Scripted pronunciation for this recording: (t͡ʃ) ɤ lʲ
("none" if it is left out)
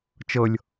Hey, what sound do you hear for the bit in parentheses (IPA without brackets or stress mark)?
t͡ʃ